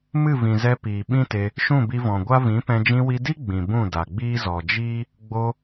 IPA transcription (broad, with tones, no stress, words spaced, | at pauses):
mɨ˦˨vĩ˨zɛ˧ piː˨ɓĩ˦te˧ | ʃũ˦˨bi˧vɔ̃˨ɡʷa˦ vĩ˨˦pɛ̃˧ d͡ʒĩ˧wi˧di˦ ɡ͡bĩ˨ bũ˦˨da˨ ɡ͡biː˦zɔ˨ d͡ʒiː˦ | ɡ͡bo˧